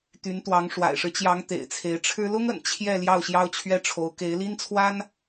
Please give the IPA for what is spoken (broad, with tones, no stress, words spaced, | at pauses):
t̪y˧˥nt̪wɑ˧˥ŋ ʂwa̰˨˩ɪ̯ʂɻ̩˦t͡ɕjɑ˧˥ŋ t̪ḛ˨˩ɪ̯t͡sʰe˧˥ɪ̯ʈ͡ʂʰɻ̩˥ lʊ˥ŋə̰˨˩n t͡ɕʰjɛ˥˧ ljɑ˥˩ʊ̯ɕjɑ˥ʊ̯t͡ɕʰɥɛ˥ʈ͡ʂʰo˧˥ʊ̯ ke˧˥ɪ̯li˥nt͡sʰwa˥n